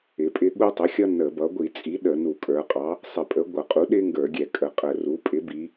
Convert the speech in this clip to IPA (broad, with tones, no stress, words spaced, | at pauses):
ɪ˩˧pʼɪ˦ ɠu˦tˤə˩˥xʲʌ˦ nə˧˩˧bʌ˩˥ ɡʷi˧˩˧t͡sʼi˩˥ ɗə˧˩˧nu˧˩˧kʼə˞˩˧qʼɑ˩˥ | sˤɪ˧˩˧pʼə˩˥ ɡʷʌ˧˩˧qʼu˩˥ɗɪ˦ ŋɡə˞˧˩˧ɡʲɛ˧˩˧ kʼə˩˧qʼə˧˩˧ru˩˥ pʼɪ˩˥bi˩˧